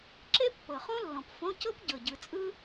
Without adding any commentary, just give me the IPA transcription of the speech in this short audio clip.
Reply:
ǁe˥pːɤ˨˩χõ˥ lːɔ̃˨˩pfõ˧˥˧ cɤ˥pɟɤ˨˩ ɟɯ˨˩t͡sʼɯ˥

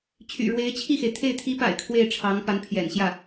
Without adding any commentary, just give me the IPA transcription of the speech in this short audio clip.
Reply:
t͡ɕʰy̰˨˩ɻwe˧˥ɪ̯ t͡ɕʰi˥˩xe˩ɪ̯t̪ʰe˥˩ɪ̯ t̪ʰi˧˥pa̰˨˩ɪ̯ kʰwe˥˩ɪ̯ʈ͡ʂʰɑ˧˥ŋ pa˧˥npʰjɛ̰˨˩nɕjä˥˩

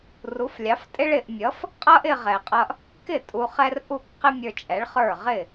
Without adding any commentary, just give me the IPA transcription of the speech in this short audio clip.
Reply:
ru˩˥flʲɑ˩˥ftʼɪ˥ɭ ɪ˧ʔ mʲʌ˩˥f | qʼʌ˥ʔɪ˧ʁɛ˩qʼʌ˧ʔ | kɪ˥˩ tʼu˧χɛ˥r ʔu˥˩kqɪ˥ mʲə˞˧t͡ʃʼɛ˩˥ɭχə˞˥˩ ʁɪ˥˩

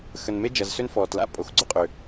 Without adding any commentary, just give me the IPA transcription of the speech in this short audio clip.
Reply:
xə˩nme˧d͡ʒɐ˩z sø˧nfɔː˩tla̰˥ pʼo˩xɡ͡ǀʊ˧qʼø˩

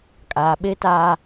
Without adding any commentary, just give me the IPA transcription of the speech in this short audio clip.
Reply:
kʼaː˨ɓe˦taː˦

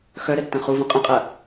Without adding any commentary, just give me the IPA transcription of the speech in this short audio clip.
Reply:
xœɾɛ tːɐ̃χuvũ qʼə̃qʼɐ

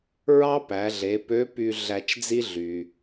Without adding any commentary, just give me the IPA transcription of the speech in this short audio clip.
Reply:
ɹɑ˥pæ˩˧ɮe˩˧ pø˧˥py˧ ɮæ˧t͡ʃd͡zi˥ ɮy˩

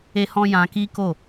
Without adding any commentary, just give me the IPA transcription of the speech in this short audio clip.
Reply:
e˧hɔ̃˧ jã˧ki˦ko˦˨

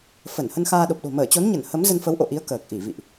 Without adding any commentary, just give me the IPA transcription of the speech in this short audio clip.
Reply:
fə˧˩n hə˧nxaː˧ɗo˨˩p̚ɗo̤˨˩ məː˧˩t͡ɕo˨˦nɲə˧˩n hə˨˦m zə˧nfə˨˦wʔo̰˧˨ʔi˨˦ə̯ kəː˨˩k̚ʔi˧˩vḭ˧˨ʔ

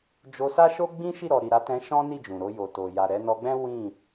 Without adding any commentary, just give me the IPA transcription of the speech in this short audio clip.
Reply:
d͡ʒo˧sa˦ʃo˦ ɡ͡bĩ˦ʃi˦˨ ɾɔ˨ɾi˨ɾa˨˦tɛ̃˧ ʃɔ̃˦ni˦˨ d͡ʒũ˨ɾo˧jo˨to˨ ja˨ɾɛ˨˦ nɔ˧ɡ͡bɛ̃˦ wĩ˦˨

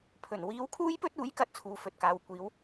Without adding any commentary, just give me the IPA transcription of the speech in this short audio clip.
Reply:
pʰɵ˨˩n wiː˨˧wkʰuː˥jpɵ˥t̚uː˨˥j kɐ˥t̚t͡sʰuː˧fɵ˧t̚kaː˧w kʷiː˨˧w

